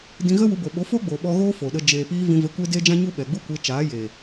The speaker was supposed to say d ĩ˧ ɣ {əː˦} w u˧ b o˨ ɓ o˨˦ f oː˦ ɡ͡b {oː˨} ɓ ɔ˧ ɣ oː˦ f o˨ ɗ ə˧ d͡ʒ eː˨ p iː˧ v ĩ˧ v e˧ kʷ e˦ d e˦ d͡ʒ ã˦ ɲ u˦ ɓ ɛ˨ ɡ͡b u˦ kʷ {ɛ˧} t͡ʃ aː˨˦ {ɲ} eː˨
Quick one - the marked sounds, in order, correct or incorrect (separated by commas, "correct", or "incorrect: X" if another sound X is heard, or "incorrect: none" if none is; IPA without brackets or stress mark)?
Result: incorrect: ə˦, correct, incorrect: e˧, incorrect: j